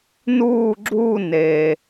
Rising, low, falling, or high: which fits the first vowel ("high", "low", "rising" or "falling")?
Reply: falling